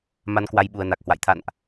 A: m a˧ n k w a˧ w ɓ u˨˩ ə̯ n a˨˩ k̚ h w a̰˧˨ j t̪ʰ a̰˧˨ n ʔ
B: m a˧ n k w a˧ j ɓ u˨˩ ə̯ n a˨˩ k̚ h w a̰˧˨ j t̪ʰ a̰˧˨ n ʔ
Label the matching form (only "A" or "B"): B